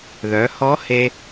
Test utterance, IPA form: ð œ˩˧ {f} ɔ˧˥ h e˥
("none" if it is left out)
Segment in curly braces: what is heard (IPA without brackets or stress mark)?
h